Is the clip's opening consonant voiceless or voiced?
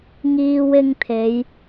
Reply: voiced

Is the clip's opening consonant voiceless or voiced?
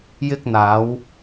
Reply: voiced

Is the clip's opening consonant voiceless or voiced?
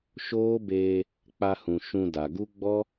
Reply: voiceless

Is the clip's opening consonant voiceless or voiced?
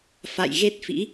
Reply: voiceless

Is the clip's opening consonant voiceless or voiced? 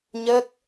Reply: voiced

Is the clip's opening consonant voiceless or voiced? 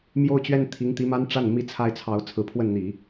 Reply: voiced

